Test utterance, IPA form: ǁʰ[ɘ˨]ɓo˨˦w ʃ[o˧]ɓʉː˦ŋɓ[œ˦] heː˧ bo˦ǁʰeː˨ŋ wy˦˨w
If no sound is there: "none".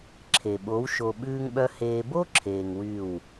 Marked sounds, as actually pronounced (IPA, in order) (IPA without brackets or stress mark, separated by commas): e˨, o˧, œ˦